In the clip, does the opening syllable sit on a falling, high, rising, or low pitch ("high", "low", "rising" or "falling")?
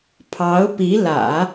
rising